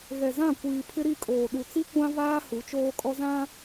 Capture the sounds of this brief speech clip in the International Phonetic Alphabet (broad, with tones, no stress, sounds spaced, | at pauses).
ɣ ɛ˨ z ã˦˨ kʷ iː˨ pʰ ɪ˦ ɾ i˦˨ kʼ oː˨ ɗ u˨ t͡s i˦ kʷ ã˦ v aː˦ h u˨˦ t͡ʃ oː˦ kʼ ɔ˦ z ã˦